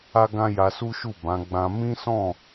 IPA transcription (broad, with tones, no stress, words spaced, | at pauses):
a˦ɡã˦ ja˧su˦ʃu˦˨ bã˨˦ɡ͡bã˧ mĩ˦sɔ̃˦˨